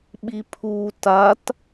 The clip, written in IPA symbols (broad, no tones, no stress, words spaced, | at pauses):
ɓipʰu tat